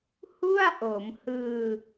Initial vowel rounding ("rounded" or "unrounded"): rounded